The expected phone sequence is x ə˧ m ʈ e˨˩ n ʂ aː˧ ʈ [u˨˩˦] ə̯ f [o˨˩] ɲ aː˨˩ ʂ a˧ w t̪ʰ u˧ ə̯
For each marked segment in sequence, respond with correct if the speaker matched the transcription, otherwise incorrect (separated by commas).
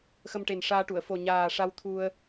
incorrect, correct